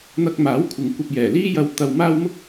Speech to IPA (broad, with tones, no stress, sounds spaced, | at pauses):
n̪ ɐ˧ k̚ m aː˨˥ w kʷʰ ɪ˨ ŋ kʷ ɐ˧ p̚ j ɛː˨˩ l iː˥ j ɐ˧ w t̪ ɐ˧ w m aː˥ w m ʊ˥ k̚